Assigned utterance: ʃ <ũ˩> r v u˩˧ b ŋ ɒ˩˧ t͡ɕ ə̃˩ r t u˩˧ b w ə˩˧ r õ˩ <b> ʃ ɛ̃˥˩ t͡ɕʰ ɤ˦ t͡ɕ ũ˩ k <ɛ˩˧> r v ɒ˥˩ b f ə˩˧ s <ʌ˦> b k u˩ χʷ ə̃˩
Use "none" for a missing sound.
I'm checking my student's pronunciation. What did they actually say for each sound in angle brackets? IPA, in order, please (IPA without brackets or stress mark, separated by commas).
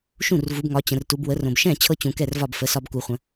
ũ˥˩, b, ɛ˥˩, ɒ˦